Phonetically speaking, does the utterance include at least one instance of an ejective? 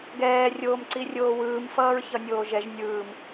no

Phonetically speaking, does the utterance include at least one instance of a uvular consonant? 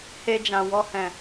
no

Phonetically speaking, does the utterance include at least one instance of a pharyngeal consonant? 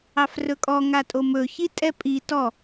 no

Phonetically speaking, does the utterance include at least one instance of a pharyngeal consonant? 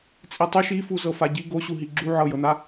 yes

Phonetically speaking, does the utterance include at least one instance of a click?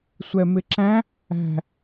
yes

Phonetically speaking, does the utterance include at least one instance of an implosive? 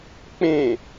no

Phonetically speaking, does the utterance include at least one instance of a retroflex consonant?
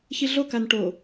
yes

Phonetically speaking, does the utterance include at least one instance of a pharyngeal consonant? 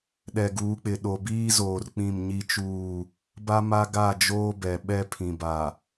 no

